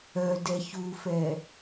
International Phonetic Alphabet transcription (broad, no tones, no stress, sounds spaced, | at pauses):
œ d ɛ ç u f ɛ